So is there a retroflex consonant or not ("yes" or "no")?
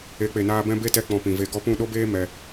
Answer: no